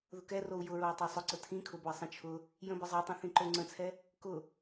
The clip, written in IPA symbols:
ð ʊ k ɛ r o u̯ j ʊ ɹ o j tˤ ɑ sˤ ʊ ǀ ə tʰ ĩ kʰ ʊ b o i̯ sˤ ə̃ t͡ʃʰ ʊ | j ə̃ b ə zˤ ɑ tˤ ĩ θ ĩ ǃ o ŋ͡ǀ ə̃ t͡sʰ ɛ | k ʊ

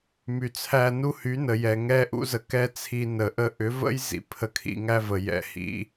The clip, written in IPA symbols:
m y˨ t͡sʰ æ˧ n u˦ h y˨˦ n ə˨ j ɛ˨ ŋ ɛ˦ ʔ ṵ˦ z ə˧ k ɛ˦ t͡sʰ i˧ n ə˨ ʔ ə˦ ʔ ʏ˨˦ v ə̰˦ j z ḭ˨ pʰ ə˧ kʰ ḭ˧ ŋ æ˦ v ə˨ j ɛ̰˧ h ḭ˧

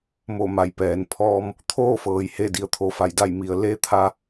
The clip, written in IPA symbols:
m o˧˩ m a˩˧ j p ɛː˩ n pʰ ɔː˧ m | t̪ʰ oː˥˨ f ɤː˩ j h e˧˩ d i˩ ə̯ t̪ʰ o˩ f a˧˩ j d a˧˩ j m i˩ ə̯ l e˧˥ t̪ʰ a˧

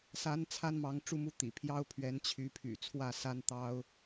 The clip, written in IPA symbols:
s a˧˥ n t͡sʰ a˥ n m ɑ˧˥ ŋ ʈ͡ʂ u˥˧ m u˥˩ t̪ ḭ˨˩ pʰ j ɑ˥ ʊ̯ pʰ ɥ ɛ˧˥ n t͡ɕʰ y˧˥ pʰ y̰˨˩ t͡sʰ w ä˥˩ s a˥ n t̪ ɑ˥ ʊ̯

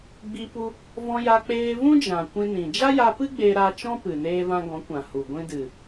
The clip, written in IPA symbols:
ɡ͡b i˧ p u˧ | v ɔ̃˧ j a˧ k͡p eː˧ v ũ˦ d͡ʒ ã˨ kʷ ĩ˧ n ĩ˨ d͡ʒ a˦ j a˧ p ɨ˦ ɡ͡b e˧ ɾ a˧ t͡ʃ ɔ̃˦ p ɨ˨ n eː˧ v ã˧ ɡ ɔ̃˨˦ kʷ ã˨ h u˨ ɡʷ ĩ˧ d ɨ˨

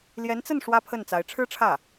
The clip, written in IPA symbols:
l j ɛ˧˥ n t͡s ə˥˩ n ʂ w ä˥ pʰ ə˥˩ n t͡s a˧˥ ɪ̯ ʈ͡ʂʰ ɻ̩˥ ʈ͡ʂʰ ä˥˩

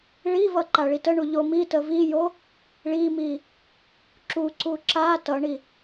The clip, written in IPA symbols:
ɭ i v ʌ ǃ a ɭ i t ə ɳ u ʎ o m i t ə v i j o | ɭ i m i | ǁ u ǀ u ǁ a t ʌ ɳ i

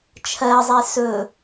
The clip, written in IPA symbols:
t͡ʃʰ ɜ zˤ e s ɵ

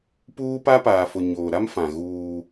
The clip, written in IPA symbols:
p uː˦ p a˦ p aː˨ f ʊ˨ ɲ oː˨ ɾ a˦ m f ã˨ ɣ uː˦

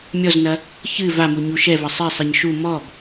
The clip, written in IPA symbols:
mʲ ɔ z n ɐ | ç ɨ v a m u ɲ u ʃ ɛ v ɐ sˤ ɛ sˤ e ɲ ʃ u m ɔ b

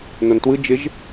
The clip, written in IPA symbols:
n o n t w ɯ d͡ʒ ɪ ʒ

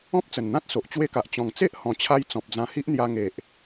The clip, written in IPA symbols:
ɔ̃˦ p̚ t͡s ə˨˩ n n̪ ã˦ t̚ s o˨ ʔ t͡ɕ w e˦ k a˨ ʔ t͡ɕ ɔ̃˨˩ ŋ t͡s e˦ ʔ h ɔ̃˨˩ t͡ɕʰ a˧ j t͡s ɔ̃˨ p̚ d͡z ã˧ h i˦ ʔ n̪ j a˧ ŋ e˨ ʔ

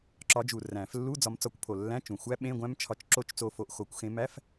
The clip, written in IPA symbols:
ǁ ɒ˨˦ d͡ʒ u˨˩ r æ̃˨˩˦ f lː u˧˥˧ d͡z ɒ˨˦ m t͡s ɒ˨˦ kʷ pʰ o˨˩ lː æ̃˧˥˧ t͡ʃ ũ˨˩ xʷ æ˦˥ ɓ ẽ˧˥˧ ɡʷ æ̃˦˥ m t͡ʃʰ ɒ˨˦ t͡ʃ ǁ o˦˨ t͡ʃ t͡s o˦˨ f o˦˨ ʔ x o˨˩˦ kʷ x ẽ˨˦ m æ˧˥˧ f

